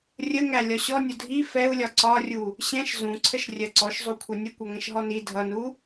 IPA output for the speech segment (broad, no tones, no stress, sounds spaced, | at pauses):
rʲ ə ŋ æ lʲ ɒ ɕ ɔ nʲ ʊ dʱ i f ɛ u̯ lʲ ɒ ǀ ɒ rʲ u | ɕ ɛ̃ ʃ z ũ ǀʰ ə ʃ rʲ ɜ ǀ ɔ ʃ zˤ u kʷʰ ʌ nʲ ə kʷ ʌ ŋ ɛ̃ ʃ ɦ ɔ n i dʱ ʌ n u